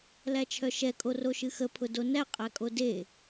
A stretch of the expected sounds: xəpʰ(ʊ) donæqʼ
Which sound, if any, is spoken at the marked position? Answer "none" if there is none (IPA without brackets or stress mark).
ʊ